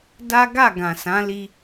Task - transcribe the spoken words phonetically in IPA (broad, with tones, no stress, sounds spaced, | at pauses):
d a˦ ɡ a˦˨ ɡ ã˨ s ã˨˦ l i˧